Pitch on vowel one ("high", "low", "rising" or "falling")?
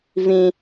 low